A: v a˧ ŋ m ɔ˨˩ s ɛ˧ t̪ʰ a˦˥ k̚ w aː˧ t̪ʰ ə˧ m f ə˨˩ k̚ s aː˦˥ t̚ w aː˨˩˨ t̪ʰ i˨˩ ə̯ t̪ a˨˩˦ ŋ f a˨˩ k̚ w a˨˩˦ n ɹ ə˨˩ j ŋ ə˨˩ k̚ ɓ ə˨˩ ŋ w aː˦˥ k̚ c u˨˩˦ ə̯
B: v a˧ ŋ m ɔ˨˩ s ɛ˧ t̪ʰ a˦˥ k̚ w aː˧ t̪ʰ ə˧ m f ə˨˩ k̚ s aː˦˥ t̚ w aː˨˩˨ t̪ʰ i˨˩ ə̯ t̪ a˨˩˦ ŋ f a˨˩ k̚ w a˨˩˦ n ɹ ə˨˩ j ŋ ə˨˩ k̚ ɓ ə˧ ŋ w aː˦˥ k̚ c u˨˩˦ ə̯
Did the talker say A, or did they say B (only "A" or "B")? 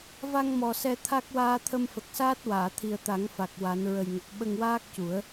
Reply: B